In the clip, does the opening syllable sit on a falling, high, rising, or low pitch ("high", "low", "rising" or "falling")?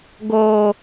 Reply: high